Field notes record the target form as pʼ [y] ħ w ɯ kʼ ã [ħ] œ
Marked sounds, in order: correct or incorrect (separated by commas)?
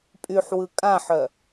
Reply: correct, correct